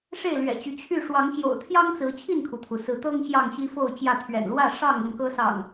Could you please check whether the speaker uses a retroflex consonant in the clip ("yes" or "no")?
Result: yes